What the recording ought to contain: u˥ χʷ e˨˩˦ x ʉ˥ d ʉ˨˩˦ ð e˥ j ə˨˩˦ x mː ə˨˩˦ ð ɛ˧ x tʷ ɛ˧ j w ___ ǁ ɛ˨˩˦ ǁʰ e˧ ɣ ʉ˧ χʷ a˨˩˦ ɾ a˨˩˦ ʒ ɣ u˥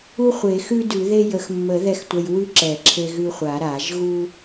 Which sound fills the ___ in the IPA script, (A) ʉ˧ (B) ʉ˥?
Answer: B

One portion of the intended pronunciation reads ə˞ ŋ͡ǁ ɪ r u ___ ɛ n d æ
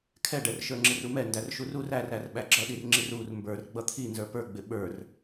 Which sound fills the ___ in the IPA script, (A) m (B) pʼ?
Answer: A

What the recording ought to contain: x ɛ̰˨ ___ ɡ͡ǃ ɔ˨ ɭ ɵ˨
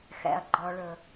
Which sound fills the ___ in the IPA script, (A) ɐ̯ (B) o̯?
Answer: A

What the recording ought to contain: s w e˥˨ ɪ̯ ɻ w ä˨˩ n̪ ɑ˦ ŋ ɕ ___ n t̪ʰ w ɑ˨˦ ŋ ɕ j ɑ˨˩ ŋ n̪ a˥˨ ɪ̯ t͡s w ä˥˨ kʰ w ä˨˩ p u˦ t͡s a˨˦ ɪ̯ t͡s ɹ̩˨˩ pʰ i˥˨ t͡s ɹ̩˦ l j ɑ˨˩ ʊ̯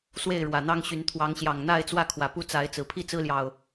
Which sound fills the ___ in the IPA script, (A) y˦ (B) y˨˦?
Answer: B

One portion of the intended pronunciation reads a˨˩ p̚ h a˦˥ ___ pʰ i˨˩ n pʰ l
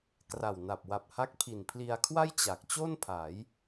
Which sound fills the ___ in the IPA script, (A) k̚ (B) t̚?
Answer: A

